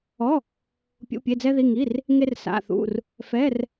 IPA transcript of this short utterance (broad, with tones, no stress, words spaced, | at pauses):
ɔ˧˥˧ | pʲṵ˧˥˧pʲe˧˥˧d͡zɛ˥ði˧˥˧ ŋi˧˥˧r | ŋe˥rsa̰˧˥˧θṵ˧˥˧r | fɛ˧˥˧r